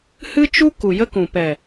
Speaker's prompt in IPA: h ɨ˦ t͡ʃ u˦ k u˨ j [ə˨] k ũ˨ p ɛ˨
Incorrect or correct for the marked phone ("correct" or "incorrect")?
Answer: incorrect